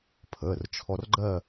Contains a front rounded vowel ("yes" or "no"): no